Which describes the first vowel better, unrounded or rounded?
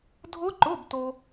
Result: rounded